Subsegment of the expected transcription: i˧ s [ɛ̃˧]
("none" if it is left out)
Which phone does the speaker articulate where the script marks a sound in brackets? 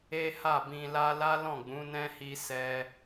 ɛ˧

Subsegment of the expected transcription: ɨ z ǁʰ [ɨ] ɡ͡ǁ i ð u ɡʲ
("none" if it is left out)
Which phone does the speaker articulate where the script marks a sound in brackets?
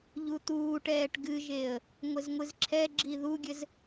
ɛ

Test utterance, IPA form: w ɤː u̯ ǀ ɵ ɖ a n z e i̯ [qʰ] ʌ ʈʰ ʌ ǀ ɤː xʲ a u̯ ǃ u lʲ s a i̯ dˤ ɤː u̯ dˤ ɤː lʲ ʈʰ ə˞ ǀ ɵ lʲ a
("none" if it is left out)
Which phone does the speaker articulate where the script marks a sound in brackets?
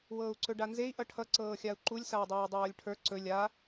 ʔ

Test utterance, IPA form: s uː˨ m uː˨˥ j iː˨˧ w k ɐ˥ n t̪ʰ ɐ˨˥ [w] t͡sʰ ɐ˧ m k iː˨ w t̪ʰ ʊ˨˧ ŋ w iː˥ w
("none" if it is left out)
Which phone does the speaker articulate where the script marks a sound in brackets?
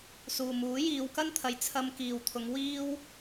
j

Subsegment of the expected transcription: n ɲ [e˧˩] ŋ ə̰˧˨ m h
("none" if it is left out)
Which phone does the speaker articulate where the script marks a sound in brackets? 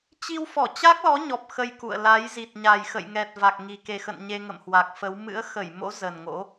e˧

